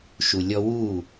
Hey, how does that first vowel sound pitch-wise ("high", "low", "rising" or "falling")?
low